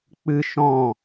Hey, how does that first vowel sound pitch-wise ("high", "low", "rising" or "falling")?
high